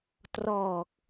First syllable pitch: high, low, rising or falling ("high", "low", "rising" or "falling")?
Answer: low